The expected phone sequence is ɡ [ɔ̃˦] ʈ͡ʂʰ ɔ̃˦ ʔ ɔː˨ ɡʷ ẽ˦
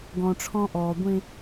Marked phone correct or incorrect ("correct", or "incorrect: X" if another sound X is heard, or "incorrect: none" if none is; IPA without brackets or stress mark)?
incorrect: ɔ̃˨